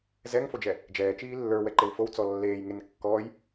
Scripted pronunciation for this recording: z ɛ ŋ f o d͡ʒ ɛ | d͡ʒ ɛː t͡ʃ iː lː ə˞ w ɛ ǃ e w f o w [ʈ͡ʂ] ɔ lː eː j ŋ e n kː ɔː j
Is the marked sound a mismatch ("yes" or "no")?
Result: yes